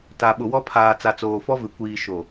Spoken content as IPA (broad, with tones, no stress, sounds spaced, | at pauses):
t a˨ ɓ ʊ˨ w ɔ˦ pʰ aː˨ t͡s a˨ t͡s oː˨ f ɔ˦ v ɪ˨ kʷ iː˨ ʃ o˨